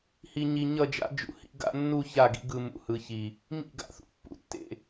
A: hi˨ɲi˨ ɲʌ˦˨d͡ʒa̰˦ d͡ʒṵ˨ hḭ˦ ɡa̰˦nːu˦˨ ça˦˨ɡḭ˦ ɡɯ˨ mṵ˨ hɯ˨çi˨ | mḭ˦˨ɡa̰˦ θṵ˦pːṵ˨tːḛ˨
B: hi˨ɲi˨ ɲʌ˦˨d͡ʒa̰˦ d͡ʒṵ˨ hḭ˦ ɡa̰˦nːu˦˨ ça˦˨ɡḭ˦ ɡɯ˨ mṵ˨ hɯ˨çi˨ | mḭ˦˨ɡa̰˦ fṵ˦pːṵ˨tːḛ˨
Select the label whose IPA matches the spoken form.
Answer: A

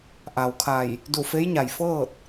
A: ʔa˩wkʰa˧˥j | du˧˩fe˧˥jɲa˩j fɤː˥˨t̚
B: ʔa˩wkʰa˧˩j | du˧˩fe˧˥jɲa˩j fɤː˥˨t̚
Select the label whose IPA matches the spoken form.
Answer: B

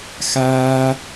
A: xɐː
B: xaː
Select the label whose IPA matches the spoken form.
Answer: B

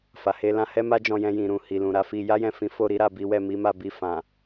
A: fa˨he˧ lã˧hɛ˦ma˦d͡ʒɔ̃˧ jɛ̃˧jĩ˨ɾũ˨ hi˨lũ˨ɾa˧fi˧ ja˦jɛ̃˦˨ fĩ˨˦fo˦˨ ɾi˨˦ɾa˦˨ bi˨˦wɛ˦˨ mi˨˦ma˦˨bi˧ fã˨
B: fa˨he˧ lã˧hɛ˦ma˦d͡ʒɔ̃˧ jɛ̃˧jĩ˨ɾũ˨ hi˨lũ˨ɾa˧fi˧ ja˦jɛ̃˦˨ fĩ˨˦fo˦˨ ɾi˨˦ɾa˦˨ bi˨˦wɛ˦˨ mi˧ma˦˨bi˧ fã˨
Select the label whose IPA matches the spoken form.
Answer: A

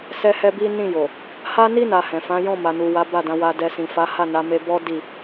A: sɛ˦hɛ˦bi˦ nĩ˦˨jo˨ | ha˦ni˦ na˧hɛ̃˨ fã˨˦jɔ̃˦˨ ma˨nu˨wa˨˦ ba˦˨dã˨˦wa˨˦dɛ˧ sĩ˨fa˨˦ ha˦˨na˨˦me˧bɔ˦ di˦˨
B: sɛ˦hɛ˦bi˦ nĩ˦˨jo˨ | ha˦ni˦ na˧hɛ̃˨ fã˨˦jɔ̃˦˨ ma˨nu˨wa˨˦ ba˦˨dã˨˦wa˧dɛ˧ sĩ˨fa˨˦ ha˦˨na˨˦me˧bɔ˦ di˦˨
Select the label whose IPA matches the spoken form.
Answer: B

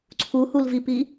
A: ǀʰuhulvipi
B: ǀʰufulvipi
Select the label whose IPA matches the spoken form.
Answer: A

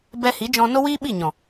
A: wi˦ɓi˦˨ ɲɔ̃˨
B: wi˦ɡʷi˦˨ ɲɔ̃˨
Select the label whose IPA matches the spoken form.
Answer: A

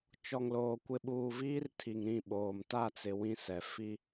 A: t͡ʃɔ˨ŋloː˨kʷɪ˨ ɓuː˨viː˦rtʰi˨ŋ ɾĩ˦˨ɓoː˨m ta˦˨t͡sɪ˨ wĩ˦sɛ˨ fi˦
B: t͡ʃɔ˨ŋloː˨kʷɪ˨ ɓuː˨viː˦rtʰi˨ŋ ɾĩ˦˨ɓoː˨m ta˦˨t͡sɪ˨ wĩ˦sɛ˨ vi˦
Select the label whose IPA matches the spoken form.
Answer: A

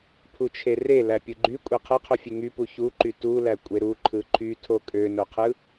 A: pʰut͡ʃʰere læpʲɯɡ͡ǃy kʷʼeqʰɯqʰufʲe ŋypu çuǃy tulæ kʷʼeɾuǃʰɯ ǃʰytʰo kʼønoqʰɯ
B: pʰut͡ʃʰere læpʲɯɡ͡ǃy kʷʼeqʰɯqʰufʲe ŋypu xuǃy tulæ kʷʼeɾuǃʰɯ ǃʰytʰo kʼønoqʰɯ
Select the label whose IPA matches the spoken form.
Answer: A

